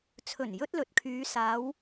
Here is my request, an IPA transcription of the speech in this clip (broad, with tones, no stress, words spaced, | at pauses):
t͡sʰɵ˨˩njɵ˧t̚ lɵ˨t̚kʰyː˨˧ saː˨˧w